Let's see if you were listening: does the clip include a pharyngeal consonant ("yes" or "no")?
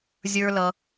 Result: no